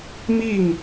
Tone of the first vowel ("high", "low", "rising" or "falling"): falling